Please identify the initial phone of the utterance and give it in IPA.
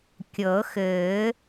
kʲ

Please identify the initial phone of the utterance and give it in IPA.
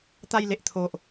t̪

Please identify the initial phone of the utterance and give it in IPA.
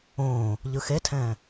õː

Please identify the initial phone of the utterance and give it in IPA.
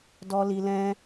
d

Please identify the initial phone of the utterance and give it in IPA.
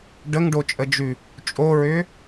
ɖ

